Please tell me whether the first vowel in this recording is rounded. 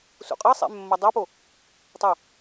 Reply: yes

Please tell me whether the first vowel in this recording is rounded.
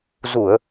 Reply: yes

